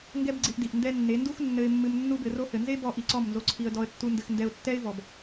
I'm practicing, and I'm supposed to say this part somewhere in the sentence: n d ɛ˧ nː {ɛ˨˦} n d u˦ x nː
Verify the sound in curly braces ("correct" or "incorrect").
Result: incorrect